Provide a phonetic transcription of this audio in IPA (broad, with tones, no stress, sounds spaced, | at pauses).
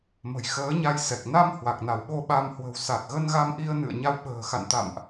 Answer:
m ə̤˨˩ j x əː˨˦ ɲ a˧ j s ɛ˨˩ k̚ n a˧ m h w a˨˩ k̚ n a˧˩ w ɓ o˧ ɓ a˧ m h w ə̤˨˩ w s a˨˩ t̚ ɣ ə˧ n ɣ a˧ m ʔ i˧ ə̯ n ɨ̰˧˨ ə̯ ɲ a˧ w ɓ ə̤ː˨˩ x a̰˧˨ n t̪ a̰˧˨ m ʔ